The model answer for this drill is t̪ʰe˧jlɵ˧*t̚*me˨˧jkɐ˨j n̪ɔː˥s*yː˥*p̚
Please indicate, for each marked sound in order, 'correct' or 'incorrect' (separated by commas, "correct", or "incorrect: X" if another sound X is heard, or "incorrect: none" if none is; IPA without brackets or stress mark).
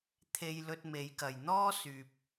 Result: correct, incorrect: yː˨